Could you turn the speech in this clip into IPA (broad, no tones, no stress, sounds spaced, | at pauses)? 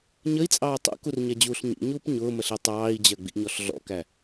ɲ ə i̯ t͡sʼ ɑː tˤ ṵ k u r ɲ ɛ d͡ʑ uː ɬ ɲ ḭ ɲ uː p ɲ ʊː m ə ɬ i tˤ ɑː i̯ d͡ʑ ɜ ɡ͡b ḭ ɲ ɔ ɬ ɮ ɔ̰ k æ